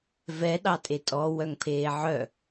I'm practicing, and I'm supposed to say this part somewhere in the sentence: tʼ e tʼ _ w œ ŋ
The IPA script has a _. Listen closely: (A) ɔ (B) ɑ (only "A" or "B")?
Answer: A